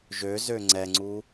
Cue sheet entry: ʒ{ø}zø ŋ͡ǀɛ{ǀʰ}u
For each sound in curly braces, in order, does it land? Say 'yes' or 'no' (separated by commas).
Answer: yes, no